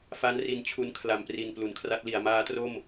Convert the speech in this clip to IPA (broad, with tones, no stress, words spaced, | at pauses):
fa˦˥n ri˧nt͡ɕʰu˧nkʰla˨˩mpri˨˩n plu˩˦nkʰra˦˥t̚li˩˦a̯ maː˦˥tro˥˩m